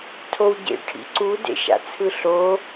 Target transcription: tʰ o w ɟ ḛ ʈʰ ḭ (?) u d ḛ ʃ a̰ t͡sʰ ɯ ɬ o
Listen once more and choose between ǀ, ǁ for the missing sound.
ǀ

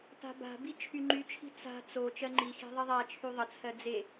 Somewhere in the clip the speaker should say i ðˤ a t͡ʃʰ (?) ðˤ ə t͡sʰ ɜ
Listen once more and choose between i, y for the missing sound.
y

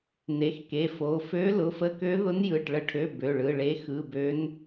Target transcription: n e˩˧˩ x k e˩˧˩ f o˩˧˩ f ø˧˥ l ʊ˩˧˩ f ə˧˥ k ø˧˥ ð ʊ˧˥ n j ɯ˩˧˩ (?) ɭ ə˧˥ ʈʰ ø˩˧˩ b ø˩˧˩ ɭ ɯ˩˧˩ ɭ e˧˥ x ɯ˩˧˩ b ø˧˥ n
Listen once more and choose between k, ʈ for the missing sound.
ʈ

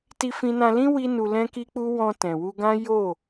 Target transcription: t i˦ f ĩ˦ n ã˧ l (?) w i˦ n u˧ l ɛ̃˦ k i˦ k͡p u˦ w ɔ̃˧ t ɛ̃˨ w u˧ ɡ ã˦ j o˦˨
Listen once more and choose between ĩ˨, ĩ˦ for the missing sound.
ĩ˦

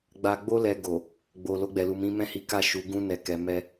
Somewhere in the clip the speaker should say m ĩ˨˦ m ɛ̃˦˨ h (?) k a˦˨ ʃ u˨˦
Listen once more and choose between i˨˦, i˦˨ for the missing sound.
i˨˦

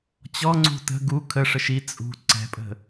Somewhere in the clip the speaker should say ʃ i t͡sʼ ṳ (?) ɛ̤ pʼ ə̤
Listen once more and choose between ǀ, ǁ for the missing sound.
ǀ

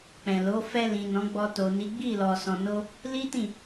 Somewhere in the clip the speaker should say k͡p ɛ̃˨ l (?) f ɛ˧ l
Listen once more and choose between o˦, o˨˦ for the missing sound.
o˨˦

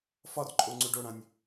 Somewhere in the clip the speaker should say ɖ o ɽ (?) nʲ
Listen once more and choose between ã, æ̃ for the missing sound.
ã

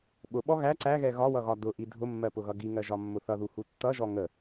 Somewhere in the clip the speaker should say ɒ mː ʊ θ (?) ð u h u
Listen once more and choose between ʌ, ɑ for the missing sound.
ʌ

